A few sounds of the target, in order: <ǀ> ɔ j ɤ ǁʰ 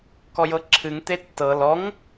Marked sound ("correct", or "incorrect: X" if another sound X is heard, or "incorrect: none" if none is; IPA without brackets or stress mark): incorrect: k